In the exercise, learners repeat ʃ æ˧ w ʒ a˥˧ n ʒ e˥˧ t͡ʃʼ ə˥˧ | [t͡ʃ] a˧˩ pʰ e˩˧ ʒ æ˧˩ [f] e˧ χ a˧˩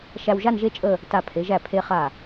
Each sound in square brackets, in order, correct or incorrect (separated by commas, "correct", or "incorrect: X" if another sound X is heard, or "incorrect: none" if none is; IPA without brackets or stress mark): incorrect: t, incorrect: pʰ